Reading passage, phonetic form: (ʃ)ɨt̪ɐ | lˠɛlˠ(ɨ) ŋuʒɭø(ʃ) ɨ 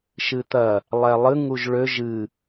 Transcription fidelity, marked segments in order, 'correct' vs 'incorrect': correct, correct, incorrect: ʒ

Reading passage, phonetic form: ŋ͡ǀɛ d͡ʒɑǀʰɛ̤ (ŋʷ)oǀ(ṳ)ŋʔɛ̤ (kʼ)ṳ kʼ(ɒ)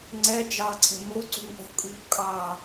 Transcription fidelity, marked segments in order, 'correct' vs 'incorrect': incorrect: m, correct, correct, incorrect: ɑ

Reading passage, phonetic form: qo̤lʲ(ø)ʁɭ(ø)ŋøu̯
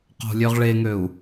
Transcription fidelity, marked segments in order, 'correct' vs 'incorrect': correct, incorrect: e

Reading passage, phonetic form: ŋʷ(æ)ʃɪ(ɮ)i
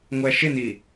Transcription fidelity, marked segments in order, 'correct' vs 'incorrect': correct, incorrect: n

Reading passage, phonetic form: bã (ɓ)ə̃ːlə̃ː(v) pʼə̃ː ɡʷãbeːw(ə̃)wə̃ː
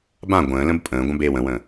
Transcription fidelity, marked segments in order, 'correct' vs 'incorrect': incorrect: ɡʷ, incorrect: b, correct

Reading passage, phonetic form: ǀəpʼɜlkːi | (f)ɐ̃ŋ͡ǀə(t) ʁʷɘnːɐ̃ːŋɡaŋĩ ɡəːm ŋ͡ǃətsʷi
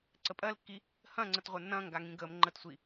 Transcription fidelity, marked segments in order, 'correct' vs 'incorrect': incorrect: h, correct

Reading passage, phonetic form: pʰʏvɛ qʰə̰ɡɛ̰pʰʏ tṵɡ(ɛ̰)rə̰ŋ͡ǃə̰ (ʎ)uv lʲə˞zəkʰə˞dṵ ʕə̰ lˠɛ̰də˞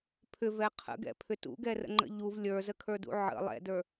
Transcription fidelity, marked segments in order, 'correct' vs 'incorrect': incorrect: ɛ, correct

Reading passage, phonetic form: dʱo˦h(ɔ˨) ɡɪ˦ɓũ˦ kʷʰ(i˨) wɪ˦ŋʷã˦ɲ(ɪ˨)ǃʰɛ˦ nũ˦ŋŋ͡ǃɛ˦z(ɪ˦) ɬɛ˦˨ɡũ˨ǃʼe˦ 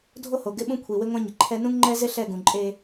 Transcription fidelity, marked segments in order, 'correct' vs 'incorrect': incorrect: o˨, correct, correct, correct

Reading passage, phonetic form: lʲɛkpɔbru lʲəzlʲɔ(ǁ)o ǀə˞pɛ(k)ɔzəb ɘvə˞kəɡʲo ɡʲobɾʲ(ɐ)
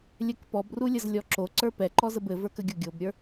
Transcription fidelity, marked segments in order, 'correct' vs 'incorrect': correct, incorrect: ǃ, incorrect: ə˞

